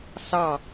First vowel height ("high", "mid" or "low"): low